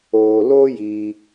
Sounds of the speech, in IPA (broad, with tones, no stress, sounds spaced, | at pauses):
oː˨ l o˦ j iː˧